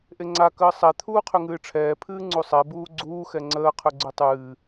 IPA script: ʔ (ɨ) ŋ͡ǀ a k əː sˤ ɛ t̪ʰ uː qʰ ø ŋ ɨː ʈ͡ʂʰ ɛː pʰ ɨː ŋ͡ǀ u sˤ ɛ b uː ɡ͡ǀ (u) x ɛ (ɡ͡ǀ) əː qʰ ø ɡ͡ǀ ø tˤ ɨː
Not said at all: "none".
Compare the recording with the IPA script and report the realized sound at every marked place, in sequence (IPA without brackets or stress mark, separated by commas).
e, uː, ŋ͡ǀ